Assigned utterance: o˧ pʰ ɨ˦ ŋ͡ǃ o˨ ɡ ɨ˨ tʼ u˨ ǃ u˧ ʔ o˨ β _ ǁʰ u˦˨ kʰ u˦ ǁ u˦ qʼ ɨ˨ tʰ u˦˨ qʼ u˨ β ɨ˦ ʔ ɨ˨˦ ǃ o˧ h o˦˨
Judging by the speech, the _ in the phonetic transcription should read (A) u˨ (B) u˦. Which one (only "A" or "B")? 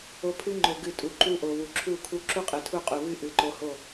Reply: A